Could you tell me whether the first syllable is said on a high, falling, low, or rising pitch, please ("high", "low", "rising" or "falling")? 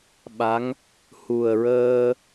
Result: rising